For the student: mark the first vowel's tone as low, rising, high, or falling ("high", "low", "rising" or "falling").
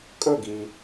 falling